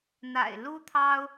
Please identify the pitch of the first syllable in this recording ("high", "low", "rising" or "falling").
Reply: low